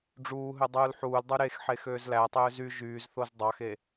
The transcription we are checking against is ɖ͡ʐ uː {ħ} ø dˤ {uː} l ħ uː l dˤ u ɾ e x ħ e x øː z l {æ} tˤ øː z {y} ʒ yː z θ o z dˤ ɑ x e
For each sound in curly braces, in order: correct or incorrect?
incorrect, correct, correct, correct

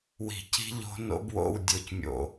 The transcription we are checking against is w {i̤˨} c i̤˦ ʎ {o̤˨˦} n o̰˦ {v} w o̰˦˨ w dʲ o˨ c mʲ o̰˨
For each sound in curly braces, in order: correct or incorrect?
correct, incorrect, incorrect

